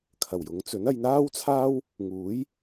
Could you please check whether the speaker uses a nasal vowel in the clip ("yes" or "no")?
no